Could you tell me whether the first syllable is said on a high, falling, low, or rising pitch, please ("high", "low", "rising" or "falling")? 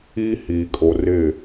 high